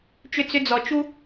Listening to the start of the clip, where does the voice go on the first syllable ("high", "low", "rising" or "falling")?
falling